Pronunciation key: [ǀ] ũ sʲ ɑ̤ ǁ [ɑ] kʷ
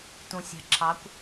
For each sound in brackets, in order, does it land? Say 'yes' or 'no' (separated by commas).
no, yes